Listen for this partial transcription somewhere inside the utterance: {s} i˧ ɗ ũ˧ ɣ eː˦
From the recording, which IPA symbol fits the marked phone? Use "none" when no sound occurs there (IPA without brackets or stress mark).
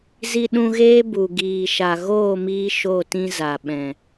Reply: z